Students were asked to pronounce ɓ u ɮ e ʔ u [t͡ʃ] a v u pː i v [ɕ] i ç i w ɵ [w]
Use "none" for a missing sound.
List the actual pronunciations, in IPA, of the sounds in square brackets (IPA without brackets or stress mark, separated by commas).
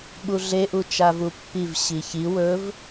t͡ʃ, ɕ, v